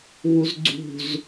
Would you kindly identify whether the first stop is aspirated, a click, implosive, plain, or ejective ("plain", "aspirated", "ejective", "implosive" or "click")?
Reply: click